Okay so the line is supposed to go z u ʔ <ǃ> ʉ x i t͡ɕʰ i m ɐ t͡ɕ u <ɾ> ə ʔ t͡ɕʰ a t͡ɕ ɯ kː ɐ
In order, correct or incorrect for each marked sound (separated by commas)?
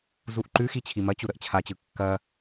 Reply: correct, correct